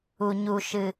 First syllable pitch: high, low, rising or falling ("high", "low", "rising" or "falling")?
low